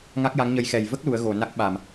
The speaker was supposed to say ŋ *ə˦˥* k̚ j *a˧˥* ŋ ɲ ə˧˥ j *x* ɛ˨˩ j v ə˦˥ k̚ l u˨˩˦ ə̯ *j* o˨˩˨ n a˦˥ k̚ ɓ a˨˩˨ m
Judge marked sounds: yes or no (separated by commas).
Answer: no, yes, yes, no